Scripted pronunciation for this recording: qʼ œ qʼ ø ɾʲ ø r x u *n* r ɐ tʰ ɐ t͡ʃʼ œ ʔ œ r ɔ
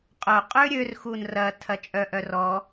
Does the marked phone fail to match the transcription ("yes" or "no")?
no